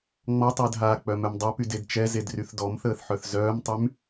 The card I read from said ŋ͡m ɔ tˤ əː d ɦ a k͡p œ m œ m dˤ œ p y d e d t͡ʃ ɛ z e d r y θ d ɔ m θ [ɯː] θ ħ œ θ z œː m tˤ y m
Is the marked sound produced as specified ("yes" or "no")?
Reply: no